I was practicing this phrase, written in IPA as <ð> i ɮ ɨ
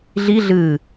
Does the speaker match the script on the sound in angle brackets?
no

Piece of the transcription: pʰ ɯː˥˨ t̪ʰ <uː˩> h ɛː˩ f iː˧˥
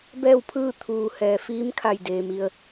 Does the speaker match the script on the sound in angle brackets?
yes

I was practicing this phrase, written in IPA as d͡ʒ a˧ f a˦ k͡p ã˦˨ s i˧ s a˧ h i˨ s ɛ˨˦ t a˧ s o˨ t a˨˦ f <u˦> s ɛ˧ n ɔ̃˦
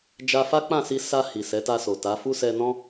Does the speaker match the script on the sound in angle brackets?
yes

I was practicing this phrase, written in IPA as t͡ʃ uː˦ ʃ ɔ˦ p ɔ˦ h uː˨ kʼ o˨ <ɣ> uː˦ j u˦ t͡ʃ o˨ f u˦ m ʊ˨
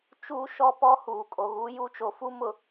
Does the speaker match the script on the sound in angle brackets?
yes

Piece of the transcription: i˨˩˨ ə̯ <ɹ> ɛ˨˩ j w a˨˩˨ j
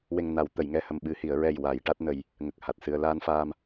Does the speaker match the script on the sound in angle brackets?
yes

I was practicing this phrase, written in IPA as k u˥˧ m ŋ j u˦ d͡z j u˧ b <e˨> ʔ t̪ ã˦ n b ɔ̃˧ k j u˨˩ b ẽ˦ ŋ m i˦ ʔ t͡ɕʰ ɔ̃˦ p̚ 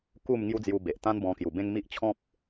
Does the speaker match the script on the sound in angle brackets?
yes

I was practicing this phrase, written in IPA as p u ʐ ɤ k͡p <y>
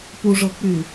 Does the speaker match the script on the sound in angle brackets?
yes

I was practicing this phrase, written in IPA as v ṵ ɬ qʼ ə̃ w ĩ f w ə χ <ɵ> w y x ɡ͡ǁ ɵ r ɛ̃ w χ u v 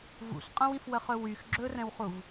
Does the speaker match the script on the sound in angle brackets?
yes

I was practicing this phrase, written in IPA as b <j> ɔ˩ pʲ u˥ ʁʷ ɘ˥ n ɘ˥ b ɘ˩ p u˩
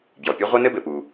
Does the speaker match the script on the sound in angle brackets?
yes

